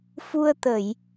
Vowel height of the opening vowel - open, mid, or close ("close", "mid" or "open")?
close